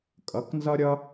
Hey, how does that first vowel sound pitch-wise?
rising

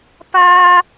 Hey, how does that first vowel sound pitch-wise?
high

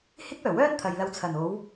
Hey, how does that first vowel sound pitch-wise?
high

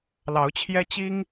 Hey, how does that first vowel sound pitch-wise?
rising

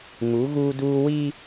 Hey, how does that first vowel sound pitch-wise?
rising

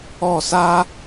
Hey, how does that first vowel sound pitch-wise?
falling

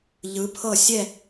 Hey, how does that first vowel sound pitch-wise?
rising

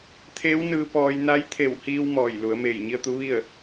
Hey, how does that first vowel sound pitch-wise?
rising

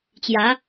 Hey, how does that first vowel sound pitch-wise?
rising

